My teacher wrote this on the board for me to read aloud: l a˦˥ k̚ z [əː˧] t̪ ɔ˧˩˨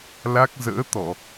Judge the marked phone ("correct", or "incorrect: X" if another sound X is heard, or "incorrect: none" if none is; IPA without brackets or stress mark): incorrect: ə̰ː˧˥